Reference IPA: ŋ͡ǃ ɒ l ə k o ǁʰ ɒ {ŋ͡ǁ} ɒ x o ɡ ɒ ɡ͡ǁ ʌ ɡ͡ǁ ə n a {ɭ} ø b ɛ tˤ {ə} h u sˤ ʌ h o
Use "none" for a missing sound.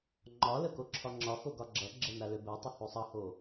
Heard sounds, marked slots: ŋ͡ǁ, l, ə

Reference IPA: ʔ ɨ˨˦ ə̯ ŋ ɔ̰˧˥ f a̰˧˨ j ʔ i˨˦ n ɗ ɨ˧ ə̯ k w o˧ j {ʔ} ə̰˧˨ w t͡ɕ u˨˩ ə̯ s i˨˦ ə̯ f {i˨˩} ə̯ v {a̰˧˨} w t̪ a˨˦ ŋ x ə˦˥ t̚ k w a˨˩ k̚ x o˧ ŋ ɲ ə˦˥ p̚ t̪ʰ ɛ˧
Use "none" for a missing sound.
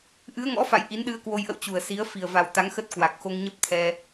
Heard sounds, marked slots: ʔ, i˨˩, a˨˩

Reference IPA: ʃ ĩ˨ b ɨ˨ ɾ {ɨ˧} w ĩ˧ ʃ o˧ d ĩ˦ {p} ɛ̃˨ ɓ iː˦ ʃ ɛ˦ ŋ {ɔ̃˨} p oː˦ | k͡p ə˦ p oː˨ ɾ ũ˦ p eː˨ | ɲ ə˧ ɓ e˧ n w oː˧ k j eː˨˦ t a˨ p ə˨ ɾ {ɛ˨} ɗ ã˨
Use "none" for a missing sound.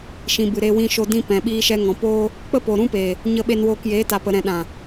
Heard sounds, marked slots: e˧, p, ɔ̃˨, ɛ̃˨

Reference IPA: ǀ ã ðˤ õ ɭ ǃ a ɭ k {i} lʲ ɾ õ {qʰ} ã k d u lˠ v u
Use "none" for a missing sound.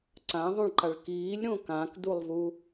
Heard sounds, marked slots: iː, k

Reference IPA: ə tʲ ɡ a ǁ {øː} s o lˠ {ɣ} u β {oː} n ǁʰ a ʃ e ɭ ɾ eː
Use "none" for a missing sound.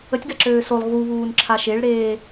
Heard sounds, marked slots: øː, ɣ, uː

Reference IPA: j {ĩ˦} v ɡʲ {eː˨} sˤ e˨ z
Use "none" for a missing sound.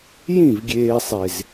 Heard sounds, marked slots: ĩ˦˨, eː˨

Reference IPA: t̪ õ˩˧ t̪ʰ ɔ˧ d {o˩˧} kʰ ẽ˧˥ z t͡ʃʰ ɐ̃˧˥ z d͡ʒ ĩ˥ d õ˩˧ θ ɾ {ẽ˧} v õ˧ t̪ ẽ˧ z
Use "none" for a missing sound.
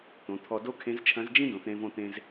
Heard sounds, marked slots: o˥, ẽ˧

